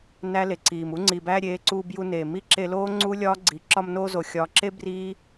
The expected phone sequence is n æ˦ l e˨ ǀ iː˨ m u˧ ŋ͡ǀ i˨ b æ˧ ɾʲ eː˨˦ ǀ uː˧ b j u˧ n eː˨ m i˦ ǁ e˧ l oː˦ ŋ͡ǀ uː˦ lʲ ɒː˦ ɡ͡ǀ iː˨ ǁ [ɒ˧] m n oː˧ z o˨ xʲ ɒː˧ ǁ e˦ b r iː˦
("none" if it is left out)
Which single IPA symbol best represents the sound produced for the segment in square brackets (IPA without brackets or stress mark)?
ɒ˧